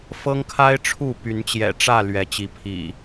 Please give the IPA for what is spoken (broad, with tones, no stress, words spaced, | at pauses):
fɤ˦ŋkʰa˦ɪ̯ ʈ͡ʂʰu˥˨py˨˦nt͡ɕjɛ̰˨˩ʈ͡ʂä˥˨ lɥɛ˨˦t͡ɕi˨˦pʰḭ˨˩